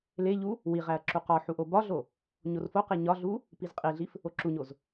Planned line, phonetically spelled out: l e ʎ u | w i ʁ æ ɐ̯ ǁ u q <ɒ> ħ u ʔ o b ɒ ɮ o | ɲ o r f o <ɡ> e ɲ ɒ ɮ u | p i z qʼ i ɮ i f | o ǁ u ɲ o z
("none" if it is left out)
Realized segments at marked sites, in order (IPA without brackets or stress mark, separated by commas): ɒ, q